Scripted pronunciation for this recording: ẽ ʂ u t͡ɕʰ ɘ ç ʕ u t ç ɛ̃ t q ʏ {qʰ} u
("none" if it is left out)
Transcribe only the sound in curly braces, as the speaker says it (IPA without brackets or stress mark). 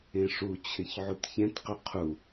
qʰ